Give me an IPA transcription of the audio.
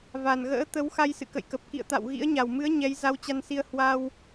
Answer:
v a˨˩ n ɣ ə̰ː˧˥ t̪ ə˨˦ w x a˧ j s ɨ̰˧˨ k ə̰˧˨ j k ə˨˩ p̚ k ḭ˧˨ ə̯ t̪ a̰˧˨ w ɣ ḭ˧˥ ə̯ ɲ a˨˩ w m ɨ˨˦ ə̯ ɲ ɛ˨˦ j z a˧ w t͡ɕ a˧ n s i˧ ə̯ h w a˧ w

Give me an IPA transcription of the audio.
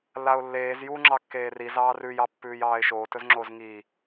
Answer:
lː a ʊ̯ lː eː z j u ŋ͡ǁ ɑ kː eː r i z ɑː r ʉ j ɑ pː ʉː j ɑː ɪ̯ ʃ oː t ɵ z ŋ͡ǁ o z ŋ i

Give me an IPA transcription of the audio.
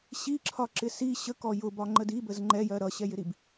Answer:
ɕ i ǁʰ ɒ ǁ ɪ s i ɕ ə k ɔ j ʊ b ɒ ŋ͡ǃ ə d i b ə z ŋ͡ǃ ɛ j ɜ ɾ ʌ ɕ ɛ j ɪ ɾ i b

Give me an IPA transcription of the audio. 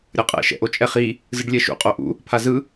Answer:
ɾʲ ʌ qʼ ɛ̰ ʃ ɛ̰ ʔ o t͡ʃʼ ɛ χ i | z ɯ ɖ lʲ ɛ ʃ ṵ qʼ o ʔ ṵ | pʰ a z ɯ

